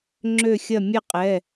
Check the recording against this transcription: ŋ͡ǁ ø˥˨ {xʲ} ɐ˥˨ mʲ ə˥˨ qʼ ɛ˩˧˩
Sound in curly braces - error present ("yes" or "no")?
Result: no